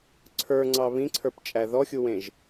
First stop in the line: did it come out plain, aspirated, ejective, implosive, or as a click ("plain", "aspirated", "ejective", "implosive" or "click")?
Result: click